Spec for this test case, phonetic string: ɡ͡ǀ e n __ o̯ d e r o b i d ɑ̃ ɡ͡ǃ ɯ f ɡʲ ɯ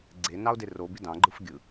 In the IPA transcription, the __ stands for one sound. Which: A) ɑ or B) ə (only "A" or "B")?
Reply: A